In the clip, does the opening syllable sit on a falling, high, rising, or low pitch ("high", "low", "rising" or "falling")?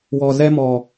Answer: low